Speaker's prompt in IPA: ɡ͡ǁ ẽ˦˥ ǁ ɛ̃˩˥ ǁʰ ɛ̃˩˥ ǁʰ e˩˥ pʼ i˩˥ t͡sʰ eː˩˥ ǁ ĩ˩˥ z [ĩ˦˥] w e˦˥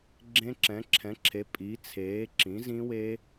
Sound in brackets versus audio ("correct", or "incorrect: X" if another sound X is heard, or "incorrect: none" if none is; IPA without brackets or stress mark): correct